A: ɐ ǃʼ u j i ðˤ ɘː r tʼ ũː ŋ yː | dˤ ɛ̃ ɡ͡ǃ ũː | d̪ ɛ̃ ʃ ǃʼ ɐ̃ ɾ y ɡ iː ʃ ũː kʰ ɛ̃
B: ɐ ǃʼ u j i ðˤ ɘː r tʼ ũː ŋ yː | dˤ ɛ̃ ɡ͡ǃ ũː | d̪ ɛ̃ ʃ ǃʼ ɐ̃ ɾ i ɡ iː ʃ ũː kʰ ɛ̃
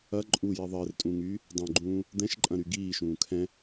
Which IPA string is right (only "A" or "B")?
A